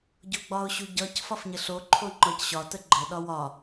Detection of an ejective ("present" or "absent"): absent